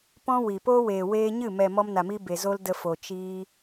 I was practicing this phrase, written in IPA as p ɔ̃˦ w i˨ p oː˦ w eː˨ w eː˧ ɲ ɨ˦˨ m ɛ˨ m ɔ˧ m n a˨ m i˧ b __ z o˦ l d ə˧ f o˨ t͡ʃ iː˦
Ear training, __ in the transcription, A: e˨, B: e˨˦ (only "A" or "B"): A